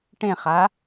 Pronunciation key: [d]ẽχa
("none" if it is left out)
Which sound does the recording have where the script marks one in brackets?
ʈ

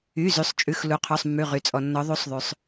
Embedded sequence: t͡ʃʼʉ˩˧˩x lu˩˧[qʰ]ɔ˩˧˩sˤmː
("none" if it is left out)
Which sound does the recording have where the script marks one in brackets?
qʰ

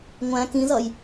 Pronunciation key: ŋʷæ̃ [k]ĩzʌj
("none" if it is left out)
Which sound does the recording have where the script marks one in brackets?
k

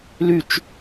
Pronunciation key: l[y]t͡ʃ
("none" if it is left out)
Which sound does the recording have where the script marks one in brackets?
y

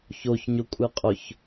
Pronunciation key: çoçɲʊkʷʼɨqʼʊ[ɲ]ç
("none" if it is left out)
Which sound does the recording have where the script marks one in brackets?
none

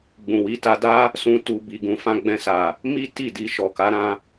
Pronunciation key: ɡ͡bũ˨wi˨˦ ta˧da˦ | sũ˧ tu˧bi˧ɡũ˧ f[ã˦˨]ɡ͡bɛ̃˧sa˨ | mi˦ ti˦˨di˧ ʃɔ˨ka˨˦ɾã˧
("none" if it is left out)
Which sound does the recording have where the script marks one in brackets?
ã˧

